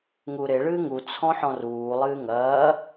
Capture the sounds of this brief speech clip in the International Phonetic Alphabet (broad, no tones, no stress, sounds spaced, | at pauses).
ŋ u ɾ e ɭ ɨː ŋ u t͡sʰ ɔ̃ ħ ɔ̃ r uː lˠ ɨː ŋ ɐː